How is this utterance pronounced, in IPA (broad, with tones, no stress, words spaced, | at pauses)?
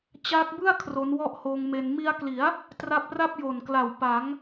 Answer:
t͡ɕaː˦˥k̚bɯ˥˩a̯ kʰro˦˥nwɔ˥˩ʔhoː˧ŋme˧n mi˧a̯kli˩˦a̯ | tra˦˥p̚ra˥˩p̚jo˨˩nkla˨˩w pa˩˦ŋ